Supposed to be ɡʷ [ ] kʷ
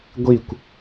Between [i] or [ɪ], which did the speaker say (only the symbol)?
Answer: i